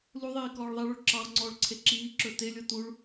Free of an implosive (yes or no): yes